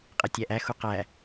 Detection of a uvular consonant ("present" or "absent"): present